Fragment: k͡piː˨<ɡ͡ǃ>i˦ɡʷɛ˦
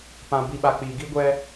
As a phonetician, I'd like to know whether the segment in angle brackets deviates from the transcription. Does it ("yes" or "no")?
yes